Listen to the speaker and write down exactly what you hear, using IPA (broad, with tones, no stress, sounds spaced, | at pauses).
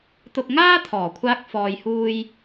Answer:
t̪ ʊ˧ k̚ ŋ aː˥ t̪ʰ ɔː˨˩ kʷʰ aː˧ k̚ f ɔː˨ j h uː˧ j